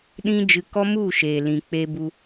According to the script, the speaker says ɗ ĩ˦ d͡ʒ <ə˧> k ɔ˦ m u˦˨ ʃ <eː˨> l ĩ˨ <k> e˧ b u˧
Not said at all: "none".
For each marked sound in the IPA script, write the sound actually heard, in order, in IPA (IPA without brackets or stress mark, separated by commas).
ɨ˧, eː˨, k͡p